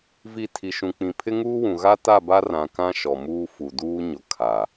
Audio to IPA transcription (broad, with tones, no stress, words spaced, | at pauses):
vi˨ tʰi˨ʃũ˨k͡pĩ˨ pʰɪ˦ŋuː˦wũ˨ ɣa˦ta˦˨ba˦ rã˨kã˦ ʃɔ˨muː˦ fu˨duː˦ ɲʊ˨ kʰa˨